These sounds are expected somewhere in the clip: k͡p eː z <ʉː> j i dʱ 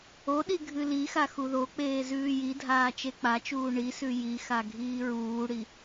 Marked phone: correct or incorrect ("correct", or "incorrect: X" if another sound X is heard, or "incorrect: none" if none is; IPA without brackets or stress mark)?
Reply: correct